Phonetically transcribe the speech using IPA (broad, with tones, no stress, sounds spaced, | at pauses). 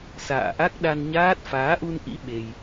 s a̰ː˧˨ ʔ a˦˥ k̚ ɗ a˧ n ɲ aː˦˥ t̚ f aː˨˦ ʔ u˧ n ʔ ḭ˧˥ ɓ e˧ j